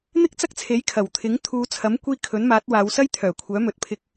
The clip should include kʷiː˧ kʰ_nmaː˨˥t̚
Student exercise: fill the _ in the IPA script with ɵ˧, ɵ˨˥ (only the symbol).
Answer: ɵ˨˥